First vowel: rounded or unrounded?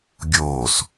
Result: rounded